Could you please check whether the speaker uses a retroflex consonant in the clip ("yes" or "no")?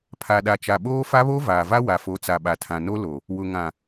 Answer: no